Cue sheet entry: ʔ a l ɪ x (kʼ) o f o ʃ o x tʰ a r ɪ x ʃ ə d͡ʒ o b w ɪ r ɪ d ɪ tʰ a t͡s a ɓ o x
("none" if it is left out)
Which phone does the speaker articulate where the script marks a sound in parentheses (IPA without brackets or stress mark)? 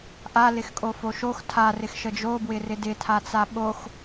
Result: kʼ